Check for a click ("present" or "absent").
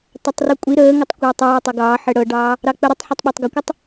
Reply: absent